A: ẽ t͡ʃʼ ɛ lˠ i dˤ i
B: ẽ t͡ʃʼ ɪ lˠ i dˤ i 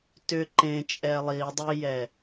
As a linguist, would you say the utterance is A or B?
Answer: A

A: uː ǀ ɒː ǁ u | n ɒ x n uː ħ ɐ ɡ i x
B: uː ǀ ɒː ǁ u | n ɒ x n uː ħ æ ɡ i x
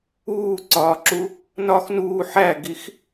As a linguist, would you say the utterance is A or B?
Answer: B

